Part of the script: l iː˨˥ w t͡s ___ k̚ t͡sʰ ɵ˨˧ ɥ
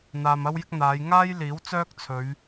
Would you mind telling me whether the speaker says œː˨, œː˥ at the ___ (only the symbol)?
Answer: œː˥